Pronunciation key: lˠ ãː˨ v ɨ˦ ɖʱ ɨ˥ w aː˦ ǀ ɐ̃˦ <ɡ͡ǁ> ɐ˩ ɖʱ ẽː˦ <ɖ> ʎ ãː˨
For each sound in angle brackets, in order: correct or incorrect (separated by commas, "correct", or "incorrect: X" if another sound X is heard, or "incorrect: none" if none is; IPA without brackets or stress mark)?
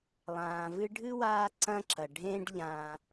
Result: incorrect: ǁ, correct